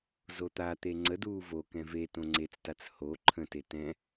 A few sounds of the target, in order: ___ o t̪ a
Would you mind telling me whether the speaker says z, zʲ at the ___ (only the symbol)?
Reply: z